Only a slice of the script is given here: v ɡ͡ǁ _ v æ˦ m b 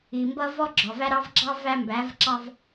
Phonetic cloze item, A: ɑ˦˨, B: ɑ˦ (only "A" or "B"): B